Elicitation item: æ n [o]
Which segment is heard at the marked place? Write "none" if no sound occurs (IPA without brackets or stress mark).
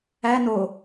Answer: o